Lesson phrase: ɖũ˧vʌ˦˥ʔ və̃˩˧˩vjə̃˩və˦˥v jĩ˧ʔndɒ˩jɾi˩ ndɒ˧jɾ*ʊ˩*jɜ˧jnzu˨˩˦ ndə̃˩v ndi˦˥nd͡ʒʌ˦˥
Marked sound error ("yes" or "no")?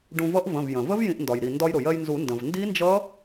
no